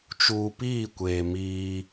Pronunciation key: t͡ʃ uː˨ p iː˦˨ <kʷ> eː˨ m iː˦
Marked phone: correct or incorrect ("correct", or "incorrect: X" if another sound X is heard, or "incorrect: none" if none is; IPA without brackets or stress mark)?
correct